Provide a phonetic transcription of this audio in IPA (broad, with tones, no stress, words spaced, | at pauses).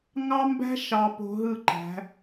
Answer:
ŋɑ˦mbæ̤˦ ʃɑ˨po̤˨ ɦɯ˦˨ǃæ̤˨˦